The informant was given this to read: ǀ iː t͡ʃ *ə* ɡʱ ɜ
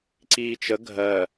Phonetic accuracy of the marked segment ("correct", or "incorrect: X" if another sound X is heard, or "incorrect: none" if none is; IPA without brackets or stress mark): correct